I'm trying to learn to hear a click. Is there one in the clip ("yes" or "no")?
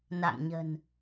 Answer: no